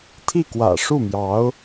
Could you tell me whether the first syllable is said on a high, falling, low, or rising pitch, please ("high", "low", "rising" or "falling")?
falling